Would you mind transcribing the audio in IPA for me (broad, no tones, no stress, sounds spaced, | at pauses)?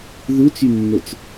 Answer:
ð u t͡s y nː o t͡s